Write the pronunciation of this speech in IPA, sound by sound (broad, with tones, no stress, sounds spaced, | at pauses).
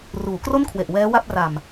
r uː˩˦ k r o˥˩ n kʰ w e˨˩ ʔ w ɛː˦˥ w a˥˩ p̚ r a˨˩ m